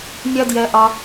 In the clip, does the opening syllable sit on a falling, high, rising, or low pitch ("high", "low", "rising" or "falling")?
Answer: high